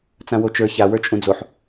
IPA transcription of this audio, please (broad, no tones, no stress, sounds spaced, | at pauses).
t͡s ã w o t͡ʃ ə˞ ç a w ə˞ t͡ʃʼ ũ d͡z o ħ